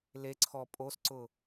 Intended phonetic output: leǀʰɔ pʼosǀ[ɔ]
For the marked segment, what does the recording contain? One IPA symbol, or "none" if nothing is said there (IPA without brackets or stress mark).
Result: ʊ